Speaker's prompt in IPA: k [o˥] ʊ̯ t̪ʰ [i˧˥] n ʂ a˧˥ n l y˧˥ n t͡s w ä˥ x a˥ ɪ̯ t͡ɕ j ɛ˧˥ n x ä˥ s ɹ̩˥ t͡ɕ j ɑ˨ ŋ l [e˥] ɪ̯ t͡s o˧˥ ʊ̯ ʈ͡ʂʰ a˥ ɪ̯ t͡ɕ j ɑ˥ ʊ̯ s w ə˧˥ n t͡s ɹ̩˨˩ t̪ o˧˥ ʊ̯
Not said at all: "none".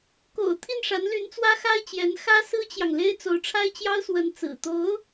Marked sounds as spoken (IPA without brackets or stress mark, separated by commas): o̰˨˩, i˥˩, e˥